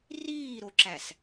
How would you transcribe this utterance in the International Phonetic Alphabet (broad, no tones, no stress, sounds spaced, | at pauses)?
r iː ɾ o ǁ æ s